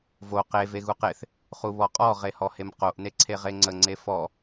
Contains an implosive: no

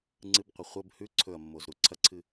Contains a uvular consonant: yes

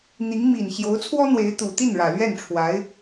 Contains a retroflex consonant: yes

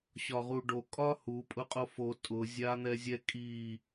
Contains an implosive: no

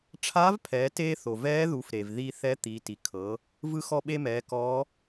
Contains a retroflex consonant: yes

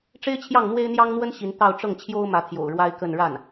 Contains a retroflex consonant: yes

